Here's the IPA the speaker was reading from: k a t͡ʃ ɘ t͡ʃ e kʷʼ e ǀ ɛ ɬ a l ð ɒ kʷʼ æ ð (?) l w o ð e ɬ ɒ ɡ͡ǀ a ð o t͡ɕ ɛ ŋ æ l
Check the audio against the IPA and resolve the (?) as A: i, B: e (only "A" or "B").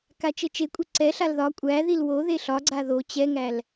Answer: A